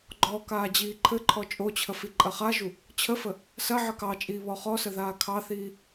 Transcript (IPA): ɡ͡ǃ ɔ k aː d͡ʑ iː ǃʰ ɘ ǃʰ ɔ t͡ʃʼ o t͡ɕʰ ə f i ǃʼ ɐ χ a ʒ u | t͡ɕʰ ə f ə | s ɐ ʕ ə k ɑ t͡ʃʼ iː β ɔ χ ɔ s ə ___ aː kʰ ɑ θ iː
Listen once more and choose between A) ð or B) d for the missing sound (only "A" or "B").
A